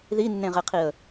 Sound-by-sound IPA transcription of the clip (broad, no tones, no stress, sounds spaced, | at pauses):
ð i nː ẽ ʁ e qʰ i ə̯